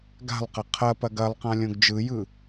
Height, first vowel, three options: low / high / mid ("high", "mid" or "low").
low